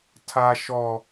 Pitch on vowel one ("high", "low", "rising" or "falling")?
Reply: high